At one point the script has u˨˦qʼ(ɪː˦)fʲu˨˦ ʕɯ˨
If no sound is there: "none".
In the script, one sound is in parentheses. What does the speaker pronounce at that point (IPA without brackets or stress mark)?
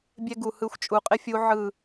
ɪ˦